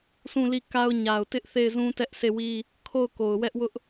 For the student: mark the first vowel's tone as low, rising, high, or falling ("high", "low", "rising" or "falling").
falling